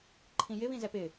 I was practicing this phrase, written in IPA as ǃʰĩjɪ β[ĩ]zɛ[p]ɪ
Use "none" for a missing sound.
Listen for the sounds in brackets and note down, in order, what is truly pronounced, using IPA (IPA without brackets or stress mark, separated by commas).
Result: ĩ, p